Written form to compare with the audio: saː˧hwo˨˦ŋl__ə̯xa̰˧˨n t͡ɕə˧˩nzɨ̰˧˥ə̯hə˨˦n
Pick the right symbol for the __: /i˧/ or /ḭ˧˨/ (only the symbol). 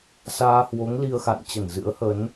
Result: i˧